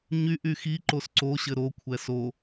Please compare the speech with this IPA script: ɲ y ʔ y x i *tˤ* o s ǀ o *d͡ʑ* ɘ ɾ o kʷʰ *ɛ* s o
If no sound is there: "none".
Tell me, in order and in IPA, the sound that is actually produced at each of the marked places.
ǃ, ɕ, ɛ

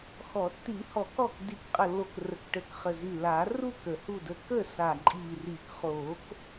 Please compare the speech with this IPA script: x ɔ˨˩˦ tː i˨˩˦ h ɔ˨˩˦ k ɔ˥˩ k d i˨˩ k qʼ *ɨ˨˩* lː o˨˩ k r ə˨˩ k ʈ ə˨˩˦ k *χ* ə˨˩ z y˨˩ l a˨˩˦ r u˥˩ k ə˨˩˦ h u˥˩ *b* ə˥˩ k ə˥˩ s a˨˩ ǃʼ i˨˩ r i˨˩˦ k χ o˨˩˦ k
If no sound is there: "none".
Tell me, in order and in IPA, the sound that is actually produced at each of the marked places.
ə˨˩, χ, d

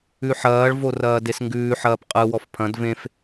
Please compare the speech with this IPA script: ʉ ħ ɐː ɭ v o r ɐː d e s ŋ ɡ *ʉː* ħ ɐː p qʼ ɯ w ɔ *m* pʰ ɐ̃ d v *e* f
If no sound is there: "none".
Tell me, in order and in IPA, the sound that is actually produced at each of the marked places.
ʉː, f, ẽ

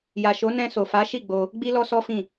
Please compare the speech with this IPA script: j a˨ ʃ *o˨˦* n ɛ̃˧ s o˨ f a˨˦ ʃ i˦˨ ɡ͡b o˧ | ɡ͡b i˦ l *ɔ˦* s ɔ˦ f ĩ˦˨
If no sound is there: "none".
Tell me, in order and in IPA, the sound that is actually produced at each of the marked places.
o˨˦, ɔ˦

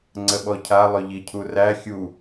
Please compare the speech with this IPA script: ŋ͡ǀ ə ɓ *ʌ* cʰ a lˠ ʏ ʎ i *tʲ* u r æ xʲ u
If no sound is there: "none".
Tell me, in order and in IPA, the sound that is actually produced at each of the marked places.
ɔ, cʰ

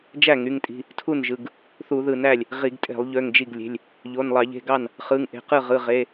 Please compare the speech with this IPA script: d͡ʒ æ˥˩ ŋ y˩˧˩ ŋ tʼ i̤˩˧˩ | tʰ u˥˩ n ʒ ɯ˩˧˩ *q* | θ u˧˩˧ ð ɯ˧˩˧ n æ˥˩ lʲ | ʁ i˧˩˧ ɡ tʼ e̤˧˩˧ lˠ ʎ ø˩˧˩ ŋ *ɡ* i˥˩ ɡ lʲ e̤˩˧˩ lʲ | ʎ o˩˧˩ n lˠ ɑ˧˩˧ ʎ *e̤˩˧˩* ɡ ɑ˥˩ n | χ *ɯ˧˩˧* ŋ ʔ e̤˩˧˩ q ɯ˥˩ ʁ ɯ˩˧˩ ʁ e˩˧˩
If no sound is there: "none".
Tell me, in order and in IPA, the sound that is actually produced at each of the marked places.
ɡ, d͡ʒ, e̤˩˧˩, ɯ˩˧˩

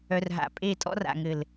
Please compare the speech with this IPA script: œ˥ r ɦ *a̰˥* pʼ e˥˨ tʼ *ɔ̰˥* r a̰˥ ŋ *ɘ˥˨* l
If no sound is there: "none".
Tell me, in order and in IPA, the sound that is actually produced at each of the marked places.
a̰˥˨, ɔ̰˥, ɘ˥˨

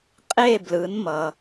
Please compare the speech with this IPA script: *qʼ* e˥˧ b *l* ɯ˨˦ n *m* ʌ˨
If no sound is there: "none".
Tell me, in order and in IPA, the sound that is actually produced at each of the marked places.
qʼ, l, m

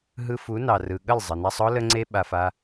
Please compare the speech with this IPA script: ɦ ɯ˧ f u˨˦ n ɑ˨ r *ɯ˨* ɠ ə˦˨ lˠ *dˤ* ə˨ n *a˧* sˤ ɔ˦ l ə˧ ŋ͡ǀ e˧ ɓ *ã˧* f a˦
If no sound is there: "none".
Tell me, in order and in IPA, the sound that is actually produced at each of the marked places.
ɯ˨, zˤ, a˧, a˧

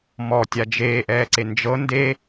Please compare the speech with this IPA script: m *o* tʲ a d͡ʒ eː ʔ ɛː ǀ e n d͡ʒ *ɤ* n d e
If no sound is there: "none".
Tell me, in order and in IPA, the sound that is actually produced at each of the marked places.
ɔ, ɤ

